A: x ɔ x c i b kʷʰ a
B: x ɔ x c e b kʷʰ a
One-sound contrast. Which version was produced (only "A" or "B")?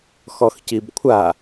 A